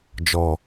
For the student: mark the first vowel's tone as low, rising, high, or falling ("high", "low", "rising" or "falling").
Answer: low